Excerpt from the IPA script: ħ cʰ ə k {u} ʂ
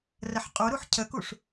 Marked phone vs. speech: correct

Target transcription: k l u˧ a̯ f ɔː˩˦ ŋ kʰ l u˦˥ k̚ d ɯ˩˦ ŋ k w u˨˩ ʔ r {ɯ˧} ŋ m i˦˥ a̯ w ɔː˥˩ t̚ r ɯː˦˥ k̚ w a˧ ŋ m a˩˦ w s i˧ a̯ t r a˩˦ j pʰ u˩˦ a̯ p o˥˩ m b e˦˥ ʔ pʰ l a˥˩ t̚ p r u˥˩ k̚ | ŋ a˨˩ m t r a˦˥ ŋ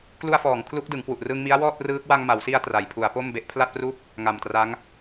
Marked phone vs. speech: correct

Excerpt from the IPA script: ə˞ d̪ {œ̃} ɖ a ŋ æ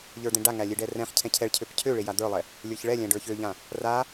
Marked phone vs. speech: incorrect: ɛ̃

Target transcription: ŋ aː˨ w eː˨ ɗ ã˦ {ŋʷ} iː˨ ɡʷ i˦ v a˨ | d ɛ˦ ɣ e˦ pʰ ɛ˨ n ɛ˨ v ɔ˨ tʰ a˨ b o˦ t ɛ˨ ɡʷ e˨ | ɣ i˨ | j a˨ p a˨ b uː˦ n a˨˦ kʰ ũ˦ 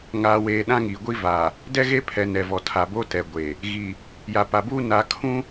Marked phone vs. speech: incorrect: ŋ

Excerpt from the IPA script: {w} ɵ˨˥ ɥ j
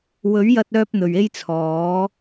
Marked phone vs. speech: correct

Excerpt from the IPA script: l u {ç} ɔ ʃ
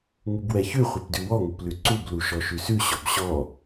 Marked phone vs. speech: incorrect: ʃ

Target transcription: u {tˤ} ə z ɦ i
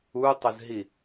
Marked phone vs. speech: correct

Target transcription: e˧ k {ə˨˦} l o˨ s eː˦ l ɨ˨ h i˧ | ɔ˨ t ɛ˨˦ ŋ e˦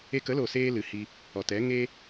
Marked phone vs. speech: correct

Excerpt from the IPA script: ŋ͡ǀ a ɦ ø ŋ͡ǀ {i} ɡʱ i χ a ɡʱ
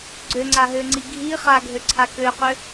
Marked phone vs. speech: correct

